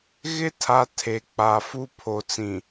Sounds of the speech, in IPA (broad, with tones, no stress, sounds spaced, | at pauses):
ɣ ɪ˦ tʰ a˨ tʰ e˨ k͡p a˨ f u˦ pʰ o˨ t͡s ĩ˨